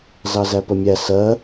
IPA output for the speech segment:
z ɑ z æ p ə mʲ æ s ɜ

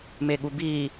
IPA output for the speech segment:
m e ɠ u b iː

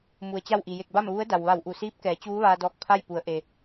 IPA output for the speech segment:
m u˩ ə̯ t͡ɕ a˥˨ w ʔ i˩ j e˧˩ k̚ b a˥˨ m ʋ u˧˥ ə̯ d a˩ w ʋ a˧˩ w ʔ u˧˩ s iː˧˥ p̚ k ɛː˩˧ t͡ɕ uː˧˥ ʋ aː˧ d ɔː˧ k̚ pʰ a˥˨ j p u˩˧ ə̯ ʔ e˩

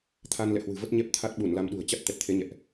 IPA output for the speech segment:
t̪ʰ a˧ n l ɛ̰˧˨ h w ɨ̤˨˩ v ə˦˥ t̚ ɲ ɛ˦˥ p̚ t̪ʰ a˦˥ t̚ ɓ u˧˩ n l a˧ m ɗ ṳ˨˩ ə̯ t͡ɕ a˦˥ t̚ t̪ ɛ˨˩ t̚ t̪ʰ e˨˦ ɲ ɛ̰˧˨ ʔ

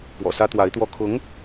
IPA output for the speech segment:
p w ɔ̰˨˩ s ä˥ t̪ w a˧˥ ɪ̯ t̪ w ɔ˥˩ kʰ ʊ˧˥ ŋ

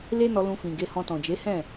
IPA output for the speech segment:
l e˦ n ɔ˧ l ũ˧ f ĩ˨ ɡ e˧ h ɔ̃˧ t ɔ̃˨ d͡ʒ e˨˦ h ɛ̃˦˨

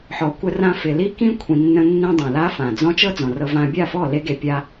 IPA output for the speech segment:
ħ ɔ˨ kʷ ə˧ r ã˧ f ɪ˨ l i˦ k ĩ˦ kʷʰ ĩ˧ nː ə̃˦ nː ĩ˦ dˤ ũ˨ l a˦ f ã˨ d͡z ɔ̃˦ t͡ʃ ɤ˦ d͡z ɔ̃˨ r ɤ˧ v ã˧ bʲ a˦˨ f ɔ˦˨ l e˧ ɡ e˨ pʲ a˧

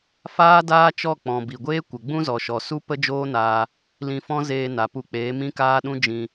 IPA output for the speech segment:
f aː˦ d aː˦ t͡ʃ ɔ˦˨ k͡p ɔ̃˨ b i˨ ɡʷ eː˦ kʷ ə˨ ɡ͡b ũ˦ z ɔ˨ ʃ ɔ˨ s u˦ p ə˦ d͡ʒ oː˦ n aː˧ | l ĩ˧ f ɔ̃˦ z eː˧ n a˨ p u˧ k͡p eː˨˦ m ĩ˦ k aː˦ ɗ ũ˦ d͡ʒ ĩ˧

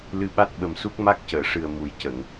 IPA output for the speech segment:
l ɨ˧ ɓ a˦˥ t̚ ɓ ə˨˩ m s u˦˥ k̚ m a˦˥ k̚ c əː˨˩˨ ʂ ɨ˨˩ ə̯ m u˨˩˦ j c ə˨˩˨ ŋ

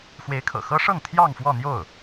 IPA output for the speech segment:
x w e˧˥ ɪ̯ kʰ ɤ̰˨˩ x ɤ˥ ʂ ɤ˥˧ ŋ t̪ʰ j ɑ˥˧ ŋ f w ɔ˥˧ n̪ j o˥˩ ʊ̯

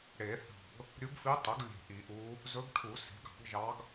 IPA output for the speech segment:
ɽ e˨˩˦ θ ɑ̤˧˩ ɡ | ɾʲ u˧˥ ɡ f i˧˥ tˤ œ˩˥ ɡ lʲ e̤˧˩ ʔ i˨˩˦ ʔ u˧˥ | z ɵ˧˥ ɡ ʈʰ u˨˩˦ s e̤˩˥ ɡ ɑ̤˨˩˦ ɡ ʒ ɑ˧˥ ɡ

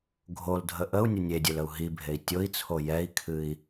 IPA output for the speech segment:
ɡʱ o l dʱ ə ʔ ə u̯ nʲ ə nʲ e dʲ e l ə u̯ ɦ i bʱ e i̯ tʲ o i̯ t͡sʰ o j ɛ i̯ kʰ ɨ i̯

